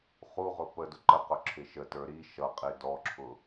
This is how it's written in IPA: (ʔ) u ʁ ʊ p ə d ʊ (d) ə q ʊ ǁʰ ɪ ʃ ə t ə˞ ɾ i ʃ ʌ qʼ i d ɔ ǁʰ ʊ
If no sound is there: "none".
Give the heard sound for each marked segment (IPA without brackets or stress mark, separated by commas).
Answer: χ, ǃ